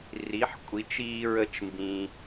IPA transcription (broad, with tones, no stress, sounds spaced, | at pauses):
r i˩˥ ħ kʷʼ i˩˥ t͡ʃ iː˦ ɹ ə˦˨ t͡ʃ m b ĩ˩